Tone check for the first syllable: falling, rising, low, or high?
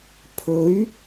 rising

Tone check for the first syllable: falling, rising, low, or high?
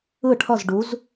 falling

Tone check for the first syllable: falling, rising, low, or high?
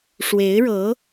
rising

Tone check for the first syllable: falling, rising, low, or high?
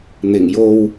low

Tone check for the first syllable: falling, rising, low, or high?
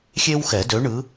high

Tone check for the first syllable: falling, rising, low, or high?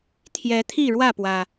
rising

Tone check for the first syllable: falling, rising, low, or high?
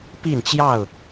falling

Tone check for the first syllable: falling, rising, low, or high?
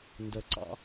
low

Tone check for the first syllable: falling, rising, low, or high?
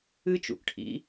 high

